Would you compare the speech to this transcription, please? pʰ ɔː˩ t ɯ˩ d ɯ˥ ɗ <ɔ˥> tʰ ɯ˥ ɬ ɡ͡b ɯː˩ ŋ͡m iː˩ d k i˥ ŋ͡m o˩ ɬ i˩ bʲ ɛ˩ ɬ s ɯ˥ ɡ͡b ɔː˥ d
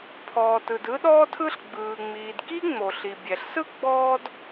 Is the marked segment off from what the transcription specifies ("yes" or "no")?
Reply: yes